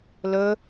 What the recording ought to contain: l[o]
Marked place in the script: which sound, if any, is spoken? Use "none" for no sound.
ɵ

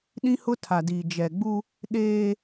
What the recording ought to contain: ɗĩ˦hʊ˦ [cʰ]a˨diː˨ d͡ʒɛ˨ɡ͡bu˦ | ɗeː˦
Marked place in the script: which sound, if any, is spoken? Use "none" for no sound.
tʰ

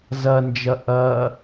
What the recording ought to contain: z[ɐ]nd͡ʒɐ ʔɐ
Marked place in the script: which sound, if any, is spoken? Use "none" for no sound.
ɐ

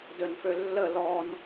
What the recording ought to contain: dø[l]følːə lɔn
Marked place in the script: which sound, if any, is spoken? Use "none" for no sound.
n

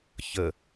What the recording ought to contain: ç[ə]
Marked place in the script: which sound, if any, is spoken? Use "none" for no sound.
ə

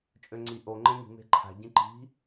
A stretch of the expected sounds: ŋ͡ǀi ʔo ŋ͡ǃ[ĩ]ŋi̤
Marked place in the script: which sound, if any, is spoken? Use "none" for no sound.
ẽ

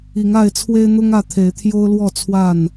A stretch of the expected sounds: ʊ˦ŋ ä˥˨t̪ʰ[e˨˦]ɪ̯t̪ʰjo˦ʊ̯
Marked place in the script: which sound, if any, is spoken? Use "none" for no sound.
e˨˦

